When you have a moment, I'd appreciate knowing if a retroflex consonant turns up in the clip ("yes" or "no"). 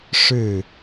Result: yes